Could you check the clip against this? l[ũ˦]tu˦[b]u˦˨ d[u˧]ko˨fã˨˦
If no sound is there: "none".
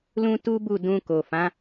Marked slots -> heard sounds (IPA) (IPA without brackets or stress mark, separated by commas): ũ˦, b, ũ˧